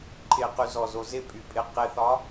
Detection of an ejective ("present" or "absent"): present